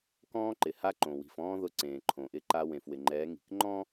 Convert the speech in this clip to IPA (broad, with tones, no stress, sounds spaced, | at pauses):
k ɔ̃ː˦ ǃ ɪ˨ h a˦ ǃ õ˨ w i̤˨ f ɔ̃ː˦ ð ʊ˦ ǀ ẽː˨ ǃʰ õ˨ ʔ ɪ˦ ǃ a˦ w ẽ˨ f w ɪ˨ ŋ͡ǃ ɛː˨˦ ŋ i̤˨ k ŋ͡ǃ ɔ̃˦